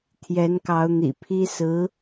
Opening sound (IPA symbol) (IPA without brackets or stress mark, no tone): t̪ʰ